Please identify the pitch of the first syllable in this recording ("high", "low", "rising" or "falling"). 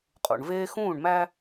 low